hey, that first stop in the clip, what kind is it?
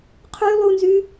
aspirated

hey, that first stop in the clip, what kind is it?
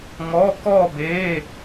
plain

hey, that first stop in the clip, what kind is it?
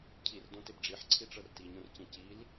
aspirated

